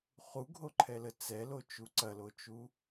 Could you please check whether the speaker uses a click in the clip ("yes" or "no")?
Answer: yes